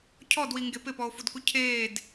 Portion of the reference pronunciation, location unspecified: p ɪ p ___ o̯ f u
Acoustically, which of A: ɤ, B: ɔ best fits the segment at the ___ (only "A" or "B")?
B